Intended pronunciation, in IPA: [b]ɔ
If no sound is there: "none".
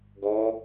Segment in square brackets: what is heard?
ɡ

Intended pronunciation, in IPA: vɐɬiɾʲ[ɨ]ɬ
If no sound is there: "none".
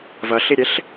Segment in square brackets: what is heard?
e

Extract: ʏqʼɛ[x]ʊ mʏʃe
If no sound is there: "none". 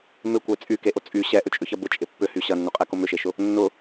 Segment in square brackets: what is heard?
k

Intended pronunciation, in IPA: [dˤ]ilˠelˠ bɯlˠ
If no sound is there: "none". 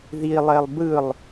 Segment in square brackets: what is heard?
ð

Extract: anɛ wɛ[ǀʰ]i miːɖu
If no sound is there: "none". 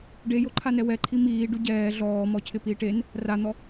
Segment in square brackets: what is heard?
ǃʰ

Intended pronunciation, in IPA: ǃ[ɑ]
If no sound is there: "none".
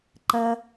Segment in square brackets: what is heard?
ɐ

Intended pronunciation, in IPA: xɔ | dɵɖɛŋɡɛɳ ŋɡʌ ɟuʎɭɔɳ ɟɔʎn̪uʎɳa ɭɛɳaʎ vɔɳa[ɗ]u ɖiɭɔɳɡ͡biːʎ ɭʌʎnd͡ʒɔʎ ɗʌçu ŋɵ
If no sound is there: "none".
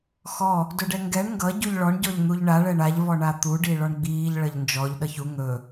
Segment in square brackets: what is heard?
t̪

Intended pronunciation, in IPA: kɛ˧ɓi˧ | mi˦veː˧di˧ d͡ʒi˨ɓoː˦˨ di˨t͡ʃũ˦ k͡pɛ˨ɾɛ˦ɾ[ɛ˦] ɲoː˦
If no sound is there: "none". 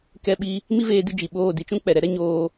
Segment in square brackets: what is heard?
ɛ˦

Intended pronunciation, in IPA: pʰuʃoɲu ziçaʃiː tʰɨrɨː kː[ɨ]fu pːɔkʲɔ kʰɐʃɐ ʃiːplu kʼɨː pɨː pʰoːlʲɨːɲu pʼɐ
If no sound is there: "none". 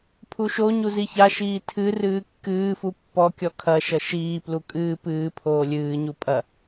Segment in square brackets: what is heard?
ɨː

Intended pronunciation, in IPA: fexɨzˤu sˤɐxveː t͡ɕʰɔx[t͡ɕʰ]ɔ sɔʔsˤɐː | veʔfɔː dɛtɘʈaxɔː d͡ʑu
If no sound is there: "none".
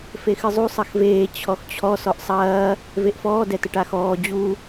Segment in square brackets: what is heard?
t͡ɕʰ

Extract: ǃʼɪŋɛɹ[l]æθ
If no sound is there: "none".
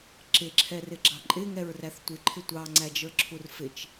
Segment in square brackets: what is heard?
r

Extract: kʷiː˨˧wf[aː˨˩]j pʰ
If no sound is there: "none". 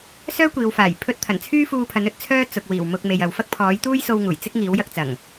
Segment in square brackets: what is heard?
aː˨˩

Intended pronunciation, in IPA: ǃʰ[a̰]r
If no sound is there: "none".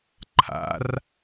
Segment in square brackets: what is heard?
a̰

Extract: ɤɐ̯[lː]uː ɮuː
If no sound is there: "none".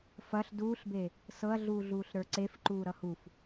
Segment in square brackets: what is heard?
ɮ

